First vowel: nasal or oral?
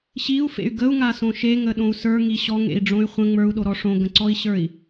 oral